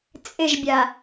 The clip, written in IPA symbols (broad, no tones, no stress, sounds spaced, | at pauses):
t͡sʼ ɪ ʒ bʲ a